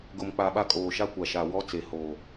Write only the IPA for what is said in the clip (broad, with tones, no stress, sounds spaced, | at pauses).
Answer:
ɡ ʊ˨ m k͡p a˨ ɓ a˦ kʼ oː˨ ʃ a˦ kʷ a˨ ʃ a˨ w ɔ˦ t͡s e˨ h oː˨